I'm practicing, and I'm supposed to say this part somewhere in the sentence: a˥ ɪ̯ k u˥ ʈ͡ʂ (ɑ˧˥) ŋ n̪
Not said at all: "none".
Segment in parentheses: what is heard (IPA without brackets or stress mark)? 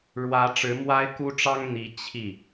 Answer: ɑ˥